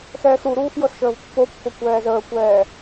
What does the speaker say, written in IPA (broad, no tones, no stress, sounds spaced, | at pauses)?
x ɛː x ɾ u ɾ uː x j ɤ s ʃ əː v pː o pː o kʷ ɛː z əː kʷ ɛː